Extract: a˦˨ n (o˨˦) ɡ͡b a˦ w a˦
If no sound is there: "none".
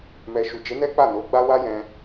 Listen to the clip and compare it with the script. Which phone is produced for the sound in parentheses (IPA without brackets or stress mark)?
o˨˦